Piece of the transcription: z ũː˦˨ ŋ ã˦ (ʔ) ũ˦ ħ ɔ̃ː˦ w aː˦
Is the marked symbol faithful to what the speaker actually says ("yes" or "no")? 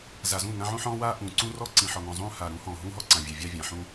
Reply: no